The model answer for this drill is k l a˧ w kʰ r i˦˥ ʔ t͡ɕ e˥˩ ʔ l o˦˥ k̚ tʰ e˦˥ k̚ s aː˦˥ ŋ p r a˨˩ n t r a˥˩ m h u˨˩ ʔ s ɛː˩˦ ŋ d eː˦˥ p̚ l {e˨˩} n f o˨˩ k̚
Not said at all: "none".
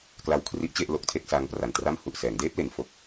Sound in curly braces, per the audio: e˩˦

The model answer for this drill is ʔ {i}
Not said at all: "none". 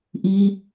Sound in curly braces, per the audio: i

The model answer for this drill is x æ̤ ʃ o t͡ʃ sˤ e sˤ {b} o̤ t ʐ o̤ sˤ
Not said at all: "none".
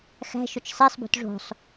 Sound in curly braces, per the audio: b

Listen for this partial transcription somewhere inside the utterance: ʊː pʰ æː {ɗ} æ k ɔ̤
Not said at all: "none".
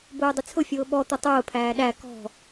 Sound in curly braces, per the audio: ɗ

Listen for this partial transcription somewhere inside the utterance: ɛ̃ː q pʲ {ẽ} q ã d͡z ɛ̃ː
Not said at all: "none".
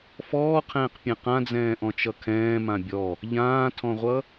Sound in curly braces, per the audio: ɛ̃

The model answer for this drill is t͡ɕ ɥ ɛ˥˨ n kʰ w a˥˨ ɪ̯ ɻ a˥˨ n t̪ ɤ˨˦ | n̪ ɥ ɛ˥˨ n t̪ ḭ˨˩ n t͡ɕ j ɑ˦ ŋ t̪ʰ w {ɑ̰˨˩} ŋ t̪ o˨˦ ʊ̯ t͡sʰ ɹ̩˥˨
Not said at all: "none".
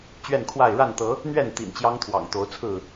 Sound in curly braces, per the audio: ɑ̰˨˩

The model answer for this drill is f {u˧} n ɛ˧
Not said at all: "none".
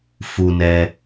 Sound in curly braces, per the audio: u˧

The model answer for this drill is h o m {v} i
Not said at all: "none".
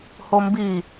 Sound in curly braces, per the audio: b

